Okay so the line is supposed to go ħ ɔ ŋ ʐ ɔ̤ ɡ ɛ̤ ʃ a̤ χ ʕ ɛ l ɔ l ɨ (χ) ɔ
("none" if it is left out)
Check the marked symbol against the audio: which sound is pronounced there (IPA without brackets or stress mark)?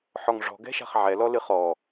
χ